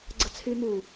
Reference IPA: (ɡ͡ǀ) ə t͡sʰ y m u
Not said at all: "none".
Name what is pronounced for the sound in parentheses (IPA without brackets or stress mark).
ɡ͡ǀ